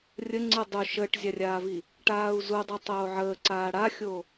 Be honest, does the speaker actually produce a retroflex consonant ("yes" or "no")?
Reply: yes